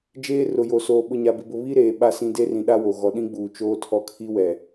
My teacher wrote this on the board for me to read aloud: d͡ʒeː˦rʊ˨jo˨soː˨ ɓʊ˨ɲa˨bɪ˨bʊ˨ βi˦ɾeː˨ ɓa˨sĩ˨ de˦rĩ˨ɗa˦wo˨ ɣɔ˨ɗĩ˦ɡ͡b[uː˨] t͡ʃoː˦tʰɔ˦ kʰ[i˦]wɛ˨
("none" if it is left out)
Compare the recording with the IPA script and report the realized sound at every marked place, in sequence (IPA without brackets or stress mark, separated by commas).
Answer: uː˨, i˦